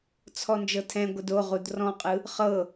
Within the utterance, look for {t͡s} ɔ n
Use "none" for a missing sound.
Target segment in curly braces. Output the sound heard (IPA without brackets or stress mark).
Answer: t͡sʰ